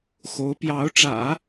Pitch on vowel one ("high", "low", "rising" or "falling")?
rising